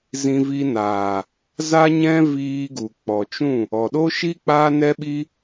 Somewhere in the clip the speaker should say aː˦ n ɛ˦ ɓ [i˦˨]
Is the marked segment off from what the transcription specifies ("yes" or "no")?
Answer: yes